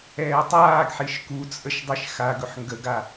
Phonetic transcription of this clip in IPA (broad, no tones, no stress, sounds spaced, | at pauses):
ɛː tˤ aː ɡ ħ i ʃ k u t͡sʼ ə ʃ dˤ i ʃ x a ɡ ɵ ħ ŋ ɡ ə ɡ a